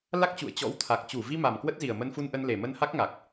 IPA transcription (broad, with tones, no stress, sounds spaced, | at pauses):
l a˦˥ k̚ t͡ɕ ṵ˧˨ ə̯ t͡ɕ ɔ̰˧˥ w t̪ʰ a˨˩ k̚ t͡ɕ u˧˩ v i˧ m a˨˩ m k w ə˦˥ t̚ z i˨˩ ə̯ m ə˧ n f u˧ n ʔ ə˧ n l e˨˩ m ə˧ n h a˦˥ k̚ ŋ a˨˩ k̚